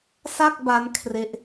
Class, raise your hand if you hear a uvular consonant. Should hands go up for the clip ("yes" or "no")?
no